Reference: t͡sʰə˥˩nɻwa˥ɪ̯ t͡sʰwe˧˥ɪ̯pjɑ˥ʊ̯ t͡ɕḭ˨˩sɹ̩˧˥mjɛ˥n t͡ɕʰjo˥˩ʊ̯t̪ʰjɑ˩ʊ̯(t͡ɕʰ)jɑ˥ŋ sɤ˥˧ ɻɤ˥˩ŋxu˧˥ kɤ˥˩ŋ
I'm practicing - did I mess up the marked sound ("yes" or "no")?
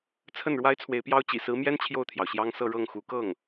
yes